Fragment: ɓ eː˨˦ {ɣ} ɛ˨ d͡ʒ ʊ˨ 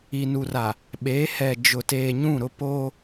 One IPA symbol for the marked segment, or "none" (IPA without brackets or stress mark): h